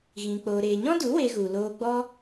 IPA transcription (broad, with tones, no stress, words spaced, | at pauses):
ɣĩ˨ k͡poː˨ɾeː˨ɲɔ̃˦du˨˦ we˧ɣu˨ loː˧ɡ͡bɔ˦